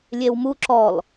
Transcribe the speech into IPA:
lʲ e w m u ǁ ɔ l

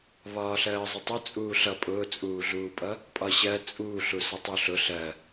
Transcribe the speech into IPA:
β ɒː ɬ ɜː zˤ ə tˤ ʊ t͡sʼ uː ɬ ʌ pʼ ʊː t͡sʼ uː ɮ uː pʼ ʌ | pʼ ɒ ɕ ɜ t͡sʼ uː ɬ u s ʌ tˤ u ɬ ʊ ɬ ɜ

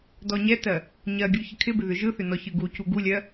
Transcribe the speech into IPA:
d ɔ ɲ ɛ t ɜ | ɲ ɜ ɡʲ u ç ɪ kʰ ɪ b ɪ ð ʏ ʒ ɯ θ ʏ n ɔ ç ɯ ɡ u c u ɡ u lʲ ɜ

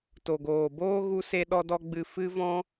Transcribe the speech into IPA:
t o˨ ɡ oː˨ b oː˦ ɣ u˦ s e˦ ɗ ɔ˦ d ɔ˦ ɡ͡b ɨ˧ f ɨ˦ v ɔ̃˦

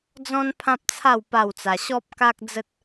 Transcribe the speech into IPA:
d͡z ɔ̃˦ n pʰ ã˦ p̚ t͡sʰ a˥˧ w p a˥˧ w t͡s a˧ ɕ ɔ˦ p̚ k a˦ k̚ d͡z ə˦ t̚

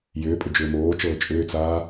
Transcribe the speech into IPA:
j ʏː pʼ ʏ d͡ʒ ʏː m oː t͡ʃ ɤː t͡ʃʼ ʏː t͡s aː

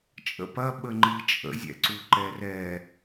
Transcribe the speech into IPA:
t͡ʃʼ ə̰ p ɐ ɓ ə ŋ͡ǃ i t͡ʃʼ ə̰ zʲ ɛ̰ ǀ u ǃ ɛ r ɛ

